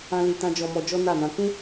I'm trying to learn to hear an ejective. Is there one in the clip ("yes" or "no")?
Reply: no